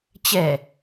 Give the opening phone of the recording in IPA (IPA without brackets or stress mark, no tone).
t͡ɕ